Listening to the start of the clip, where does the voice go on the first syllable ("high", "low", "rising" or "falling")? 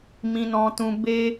high